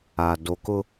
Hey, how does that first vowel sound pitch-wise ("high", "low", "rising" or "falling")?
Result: low